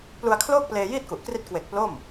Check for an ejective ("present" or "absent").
absent